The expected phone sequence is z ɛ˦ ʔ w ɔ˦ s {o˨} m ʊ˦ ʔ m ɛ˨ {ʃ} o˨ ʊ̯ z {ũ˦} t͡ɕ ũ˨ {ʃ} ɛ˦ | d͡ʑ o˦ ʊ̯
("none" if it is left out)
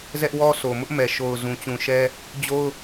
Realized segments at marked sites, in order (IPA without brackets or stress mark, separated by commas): o˨, ʃ, ũ˨, ʃ